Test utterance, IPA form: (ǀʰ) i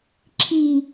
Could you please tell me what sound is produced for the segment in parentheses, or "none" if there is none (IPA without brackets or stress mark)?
ǁʰ